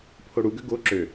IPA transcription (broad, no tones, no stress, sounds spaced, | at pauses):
pʰ o ɽ u ɡ ø ɡ o ǁ ø